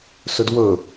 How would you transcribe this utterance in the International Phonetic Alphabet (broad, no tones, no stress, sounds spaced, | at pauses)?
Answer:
s ɵ d w ɵ